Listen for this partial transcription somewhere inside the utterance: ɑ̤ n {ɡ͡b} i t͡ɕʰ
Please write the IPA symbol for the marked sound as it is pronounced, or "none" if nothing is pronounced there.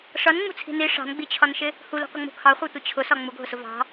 ɡ͡b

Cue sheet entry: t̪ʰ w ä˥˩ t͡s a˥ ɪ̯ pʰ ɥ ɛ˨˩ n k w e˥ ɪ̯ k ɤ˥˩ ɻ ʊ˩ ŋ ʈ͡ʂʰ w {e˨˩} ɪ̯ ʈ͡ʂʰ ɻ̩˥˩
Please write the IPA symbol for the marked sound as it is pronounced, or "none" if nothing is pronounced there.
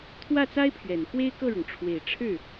e˨˩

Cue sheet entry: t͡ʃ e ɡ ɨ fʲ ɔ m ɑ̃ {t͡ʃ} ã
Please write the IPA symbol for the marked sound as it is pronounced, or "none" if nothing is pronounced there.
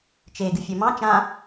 t͡ʃ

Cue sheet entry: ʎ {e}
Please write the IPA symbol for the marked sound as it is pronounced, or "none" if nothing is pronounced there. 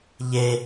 e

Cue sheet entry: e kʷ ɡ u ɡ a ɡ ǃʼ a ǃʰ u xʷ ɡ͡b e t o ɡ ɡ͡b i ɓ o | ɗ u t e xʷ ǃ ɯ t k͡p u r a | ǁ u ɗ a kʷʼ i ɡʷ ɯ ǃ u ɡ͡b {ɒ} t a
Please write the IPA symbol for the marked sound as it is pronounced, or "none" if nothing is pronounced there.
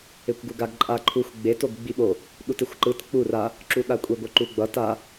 ʌ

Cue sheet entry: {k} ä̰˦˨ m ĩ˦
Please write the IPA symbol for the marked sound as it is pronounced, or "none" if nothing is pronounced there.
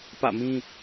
p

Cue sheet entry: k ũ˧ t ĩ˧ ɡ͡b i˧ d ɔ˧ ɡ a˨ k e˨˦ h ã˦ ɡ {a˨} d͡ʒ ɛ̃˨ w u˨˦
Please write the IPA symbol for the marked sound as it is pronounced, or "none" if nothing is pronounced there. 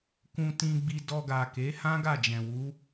a˦˨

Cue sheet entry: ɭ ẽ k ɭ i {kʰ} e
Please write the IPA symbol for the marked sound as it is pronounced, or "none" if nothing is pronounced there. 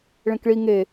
ŋ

